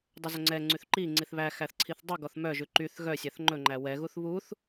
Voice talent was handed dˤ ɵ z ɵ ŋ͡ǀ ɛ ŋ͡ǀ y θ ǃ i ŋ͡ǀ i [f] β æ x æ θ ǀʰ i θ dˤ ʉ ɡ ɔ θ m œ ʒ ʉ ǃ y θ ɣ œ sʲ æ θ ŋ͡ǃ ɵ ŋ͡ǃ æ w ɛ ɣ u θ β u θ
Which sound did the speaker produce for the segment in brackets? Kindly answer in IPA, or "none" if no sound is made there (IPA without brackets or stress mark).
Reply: θ